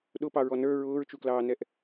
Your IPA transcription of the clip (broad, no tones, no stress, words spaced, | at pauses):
ɗʊpɑɹɔ nə˞ ɹʊːɹt͡ʃuklɑːnɛʔ